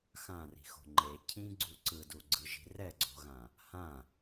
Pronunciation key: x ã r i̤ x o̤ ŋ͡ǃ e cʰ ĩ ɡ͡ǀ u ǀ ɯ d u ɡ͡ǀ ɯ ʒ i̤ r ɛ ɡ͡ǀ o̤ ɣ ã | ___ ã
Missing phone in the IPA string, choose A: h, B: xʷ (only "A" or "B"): A